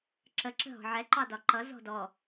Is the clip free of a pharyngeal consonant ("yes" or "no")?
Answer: no